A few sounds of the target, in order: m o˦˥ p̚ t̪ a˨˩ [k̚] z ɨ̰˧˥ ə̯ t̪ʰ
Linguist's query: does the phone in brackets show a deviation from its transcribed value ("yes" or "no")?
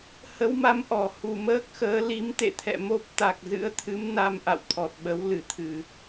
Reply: no